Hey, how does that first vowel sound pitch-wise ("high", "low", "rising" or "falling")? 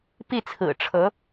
falling